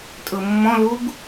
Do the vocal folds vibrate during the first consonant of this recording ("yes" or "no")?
no